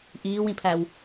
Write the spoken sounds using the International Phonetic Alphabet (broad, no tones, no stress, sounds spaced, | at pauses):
ʔ iː w ĩ pʰ æ w